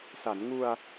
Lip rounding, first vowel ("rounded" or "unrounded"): unrounded